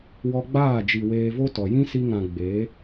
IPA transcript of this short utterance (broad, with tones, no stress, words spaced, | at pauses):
wɔ˧ɡ͡baː˦˨d͡ʒi˨ weː˧vo˦tɔ˨ jĩ˦si˧ŋã˨ ɡ͡be˨˦